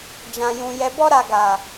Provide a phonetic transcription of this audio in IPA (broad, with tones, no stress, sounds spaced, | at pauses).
d͡ʒ ã˨ j ũ˨ j ɛ˨ b ɔ˧ ɾ a˨ ɡ a˨